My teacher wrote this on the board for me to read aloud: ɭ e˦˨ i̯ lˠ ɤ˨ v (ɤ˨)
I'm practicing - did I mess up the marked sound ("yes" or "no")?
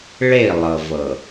no